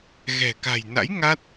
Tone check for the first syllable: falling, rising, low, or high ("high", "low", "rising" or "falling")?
low